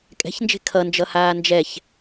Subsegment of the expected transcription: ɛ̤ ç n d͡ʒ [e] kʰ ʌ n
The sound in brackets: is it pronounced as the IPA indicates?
no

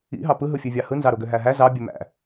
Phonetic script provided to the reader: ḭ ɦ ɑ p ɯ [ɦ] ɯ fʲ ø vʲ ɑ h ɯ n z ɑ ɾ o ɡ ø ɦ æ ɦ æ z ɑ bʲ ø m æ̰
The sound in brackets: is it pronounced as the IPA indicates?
yes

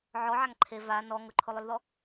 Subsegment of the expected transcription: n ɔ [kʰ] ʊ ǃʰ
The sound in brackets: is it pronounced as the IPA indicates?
no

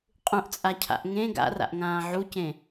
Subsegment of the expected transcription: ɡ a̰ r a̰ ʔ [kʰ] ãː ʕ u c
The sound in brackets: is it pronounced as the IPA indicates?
no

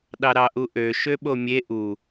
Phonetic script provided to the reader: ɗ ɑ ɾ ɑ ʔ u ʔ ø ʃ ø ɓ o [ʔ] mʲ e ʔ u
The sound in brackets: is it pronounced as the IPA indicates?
no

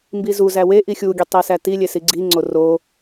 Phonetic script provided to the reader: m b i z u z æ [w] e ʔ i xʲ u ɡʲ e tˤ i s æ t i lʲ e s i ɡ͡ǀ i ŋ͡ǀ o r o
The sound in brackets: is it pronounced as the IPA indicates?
yes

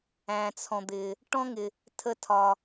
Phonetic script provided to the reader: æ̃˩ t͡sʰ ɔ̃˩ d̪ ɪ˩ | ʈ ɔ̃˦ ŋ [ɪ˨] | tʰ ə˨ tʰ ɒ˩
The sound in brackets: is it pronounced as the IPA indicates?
no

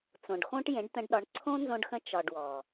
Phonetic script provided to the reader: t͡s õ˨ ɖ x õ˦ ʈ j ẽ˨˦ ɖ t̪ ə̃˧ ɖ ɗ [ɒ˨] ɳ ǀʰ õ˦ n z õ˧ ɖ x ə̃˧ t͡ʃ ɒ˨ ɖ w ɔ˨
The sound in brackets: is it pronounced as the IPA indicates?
no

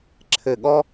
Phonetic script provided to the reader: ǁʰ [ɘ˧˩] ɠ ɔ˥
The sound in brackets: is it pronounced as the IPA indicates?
yes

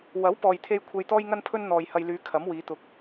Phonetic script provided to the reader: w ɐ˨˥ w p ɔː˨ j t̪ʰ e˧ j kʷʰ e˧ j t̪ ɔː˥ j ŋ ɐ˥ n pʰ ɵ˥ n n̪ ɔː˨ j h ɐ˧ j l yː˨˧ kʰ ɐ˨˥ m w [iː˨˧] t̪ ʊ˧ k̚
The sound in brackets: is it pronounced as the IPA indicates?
yes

